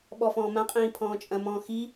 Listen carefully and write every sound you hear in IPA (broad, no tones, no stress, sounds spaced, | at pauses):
ɓ ɔ f ɔ̃ː m ã qʼ ĩː pʰ ɔ̃ː t͡ʃʼ ɐ̃ m ɔ̃ː x i